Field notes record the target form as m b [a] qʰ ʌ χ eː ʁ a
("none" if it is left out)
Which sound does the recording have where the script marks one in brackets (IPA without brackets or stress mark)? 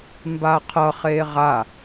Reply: a